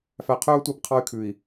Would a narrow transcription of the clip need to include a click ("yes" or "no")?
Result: no